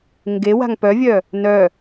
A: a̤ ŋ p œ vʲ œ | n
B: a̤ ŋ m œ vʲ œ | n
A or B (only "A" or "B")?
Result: A